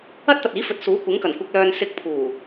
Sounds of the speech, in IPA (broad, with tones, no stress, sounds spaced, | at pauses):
ɐ˥ t̚ t̪ ɐ˨ t̚ iː˨˥ f ɵ˨ t̚ s uː˨˥ kʷ ɪ˨˥ ŋ k ɐ˨˩ n kʷ ɪ˨ k̚ l œː˨ n s ɪ˧ k̚ pʰ uː˨˩